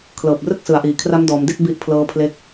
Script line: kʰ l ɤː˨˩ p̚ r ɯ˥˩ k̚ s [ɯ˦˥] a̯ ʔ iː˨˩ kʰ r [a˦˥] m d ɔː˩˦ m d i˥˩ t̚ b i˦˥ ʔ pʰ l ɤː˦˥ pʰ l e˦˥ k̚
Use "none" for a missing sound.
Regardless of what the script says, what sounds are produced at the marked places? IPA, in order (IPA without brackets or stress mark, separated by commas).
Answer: ɯ˩˦, a˦˥